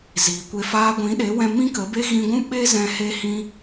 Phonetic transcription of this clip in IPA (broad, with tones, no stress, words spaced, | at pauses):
ziː˨kʷe˧faː˦ ɡʷĩ˨˦ɗe˨˦wɛ̃˧ mĩ˦kə˨˦be˦ ɣĩ˧ɡʷũ˦ ɓe˦zɛ̃˧ he˦hĩ˦